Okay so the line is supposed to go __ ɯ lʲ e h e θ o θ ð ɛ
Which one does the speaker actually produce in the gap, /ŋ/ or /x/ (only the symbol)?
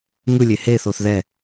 ŋ